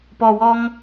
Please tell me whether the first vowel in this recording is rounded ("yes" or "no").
yes